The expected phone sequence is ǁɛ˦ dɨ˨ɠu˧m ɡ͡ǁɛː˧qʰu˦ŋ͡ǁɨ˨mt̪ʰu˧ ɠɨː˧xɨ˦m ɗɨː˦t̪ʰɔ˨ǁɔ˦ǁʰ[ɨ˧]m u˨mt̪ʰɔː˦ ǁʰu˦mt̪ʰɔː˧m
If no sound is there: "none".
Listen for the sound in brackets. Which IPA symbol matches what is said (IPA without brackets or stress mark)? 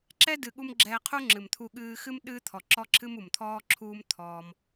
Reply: ɨ˦